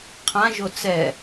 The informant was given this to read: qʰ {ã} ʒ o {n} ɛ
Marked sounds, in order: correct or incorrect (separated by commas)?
correct, incorrect